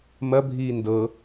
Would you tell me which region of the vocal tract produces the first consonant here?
lips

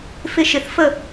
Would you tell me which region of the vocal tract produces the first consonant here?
lips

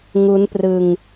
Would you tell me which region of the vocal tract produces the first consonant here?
velum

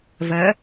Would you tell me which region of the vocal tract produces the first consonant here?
lips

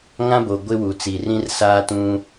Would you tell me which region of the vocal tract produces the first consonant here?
velum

